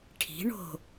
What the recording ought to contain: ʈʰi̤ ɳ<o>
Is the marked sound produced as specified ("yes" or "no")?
no